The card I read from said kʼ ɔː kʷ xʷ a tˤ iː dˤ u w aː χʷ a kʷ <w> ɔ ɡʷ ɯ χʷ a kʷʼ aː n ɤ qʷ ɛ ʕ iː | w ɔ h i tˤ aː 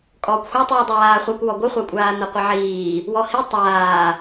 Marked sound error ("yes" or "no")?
no